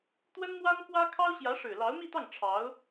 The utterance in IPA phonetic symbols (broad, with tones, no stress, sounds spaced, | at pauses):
t̪ w ə˥ n m w a˥ n k w ä˥ kʰ ɑ˥ ʊ̯ ɕ j ä˧˥ ʂ ɻ̩˨˩ l ɑ˧˥ ʊ̯ m i˥˧ t̪ ɑ˥˩ ŋ ʈ͡ʂʰ ɑ˧˥ ʊ̯